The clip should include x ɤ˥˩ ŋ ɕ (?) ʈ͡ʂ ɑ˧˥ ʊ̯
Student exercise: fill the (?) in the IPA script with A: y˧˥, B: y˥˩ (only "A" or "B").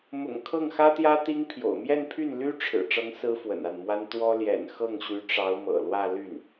A